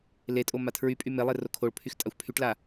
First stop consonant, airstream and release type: ejective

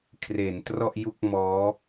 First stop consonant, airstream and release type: aspirated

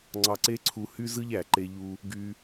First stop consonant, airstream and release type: click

